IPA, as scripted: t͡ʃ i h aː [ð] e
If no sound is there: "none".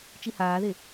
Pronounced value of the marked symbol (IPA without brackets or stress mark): ð